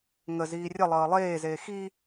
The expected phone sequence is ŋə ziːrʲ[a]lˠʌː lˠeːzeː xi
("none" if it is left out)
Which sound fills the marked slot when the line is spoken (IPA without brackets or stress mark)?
ʌ